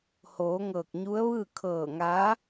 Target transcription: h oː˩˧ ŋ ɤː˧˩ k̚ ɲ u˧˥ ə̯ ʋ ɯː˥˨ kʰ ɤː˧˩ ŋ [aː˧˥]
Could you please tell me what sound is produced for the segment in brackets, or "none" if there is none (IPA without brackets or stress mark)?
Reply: aː˧˥